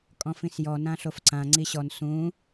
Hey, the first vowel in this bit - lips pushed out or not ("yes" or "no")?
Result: yes